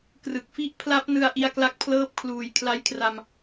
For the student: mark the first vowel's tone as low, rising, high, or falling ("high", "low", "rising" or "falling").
low